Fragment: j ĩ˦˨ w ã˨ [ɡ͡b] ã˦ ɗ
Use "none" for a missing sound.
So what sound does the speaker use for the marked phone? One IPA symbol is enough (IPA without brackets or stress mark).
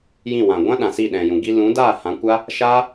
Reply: ɡʷ